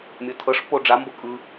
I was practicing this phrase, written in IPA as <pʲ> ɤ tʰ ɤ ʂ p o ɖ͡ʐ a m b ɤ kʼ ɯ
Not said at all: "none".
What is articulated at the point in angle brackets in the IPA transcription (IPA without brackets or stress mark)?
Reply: mʲ